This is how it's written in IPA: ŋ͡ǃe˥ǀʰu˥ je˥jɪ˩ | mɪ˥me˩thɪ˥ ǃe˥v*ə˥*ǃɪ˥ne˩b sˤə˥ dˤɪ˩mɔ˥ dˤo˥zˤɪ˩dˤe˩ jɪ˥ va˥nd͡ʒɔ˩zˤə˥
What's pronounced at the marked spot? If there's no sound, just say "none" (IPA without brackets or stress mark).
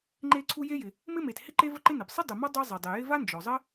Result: ə˥